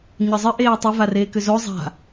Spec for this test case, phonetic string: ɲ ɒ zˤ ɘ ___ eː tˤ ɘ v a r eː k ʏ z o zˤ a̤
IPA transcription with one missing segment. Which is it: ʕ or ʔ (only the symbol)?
ʔ